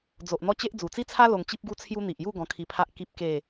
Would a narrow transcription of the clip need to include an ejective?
no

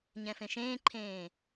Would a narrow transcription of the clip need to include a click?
yes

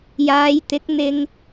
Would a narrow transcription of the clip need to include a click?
no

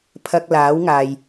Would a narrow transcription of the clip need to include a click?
no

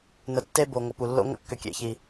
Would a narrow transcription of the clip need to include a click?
no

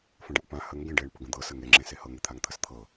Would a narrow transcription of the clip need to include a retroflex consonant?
yes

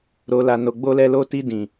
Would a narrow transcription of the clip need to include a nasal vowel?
yes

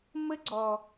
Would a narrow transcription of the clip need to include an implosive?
no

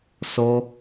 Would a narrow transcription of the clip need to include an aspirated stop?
no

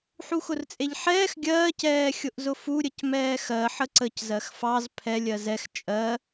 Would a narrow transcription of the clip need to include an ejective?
yes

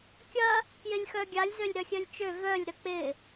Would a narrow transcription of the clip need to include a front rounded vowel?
yes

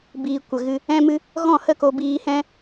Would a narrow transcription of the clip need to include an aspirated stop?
no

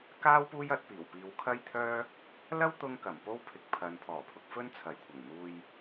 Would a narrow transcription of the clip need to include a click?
no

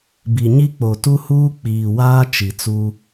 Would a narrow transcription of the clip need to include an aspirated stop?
no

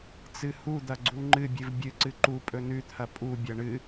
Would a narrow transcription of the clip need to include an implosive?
no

